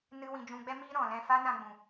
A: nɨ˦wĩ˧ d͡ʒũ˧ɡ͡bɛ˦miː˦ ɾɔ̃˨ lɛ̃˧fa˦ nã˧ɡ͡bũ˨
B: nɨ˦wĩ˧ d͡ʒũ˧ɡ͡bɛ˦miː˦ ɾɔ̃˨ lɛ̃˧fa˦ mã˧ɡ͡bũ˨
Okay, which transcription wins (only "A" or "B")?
A